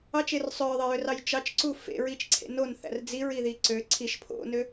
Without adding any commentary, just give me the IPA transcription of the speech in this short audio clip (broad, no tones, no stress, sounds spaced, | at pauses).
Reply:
ɑ t͡ʃ e r sˤ ø ɹ ðˤ e j ø r ɑ j t͡ʃ ɑ t͡ʃ ǀ u f ḛ ɹ i t͡ʃ ǀʰ ḛ n o n θ æ̰ r d͡z i ɹ i ð i ǀ ø ǀʰ i ʃ pʰ o̰ n ø